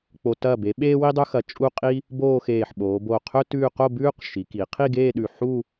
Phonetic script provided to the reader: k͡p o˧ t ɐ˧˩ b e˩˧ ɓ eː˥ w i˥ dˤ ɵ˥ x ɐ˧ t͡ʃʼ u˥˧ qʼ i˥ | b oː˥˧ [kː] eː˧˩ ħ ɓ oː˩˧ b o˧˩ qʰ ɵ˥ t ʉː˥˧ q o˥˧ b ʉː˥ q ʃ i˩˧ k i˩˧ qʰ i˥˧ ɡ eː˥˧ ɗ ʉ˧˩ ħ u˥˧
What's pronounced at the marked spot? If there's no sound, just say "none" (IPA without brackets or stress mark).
x